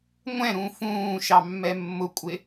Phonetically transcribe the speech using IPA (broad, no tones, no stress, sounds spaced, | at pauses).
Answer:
ŋʷ ɛ̃ ɾ ũ f ũː ʃ ɑ mː ɛ mː ʊ kʷʼ ɪ